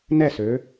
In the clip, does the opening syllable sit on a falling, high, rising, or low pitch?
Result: falling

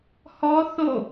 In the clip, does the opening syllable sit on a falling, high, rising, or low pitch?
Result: high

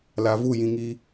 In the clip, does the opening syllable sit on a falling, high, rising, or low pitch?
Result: low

